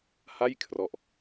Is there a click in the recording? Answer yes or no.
no